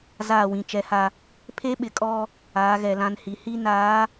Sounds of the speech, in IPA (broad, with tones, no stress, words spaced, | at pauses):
zaː˦˨wĩ˨ t͡ʃɛ˨˦ha˦ | pʰe˦ɓɪ˨kʼɔ˦ | aː˨˦ɣɛ˨lã˦nhi˨˦ hi˦naː˨˦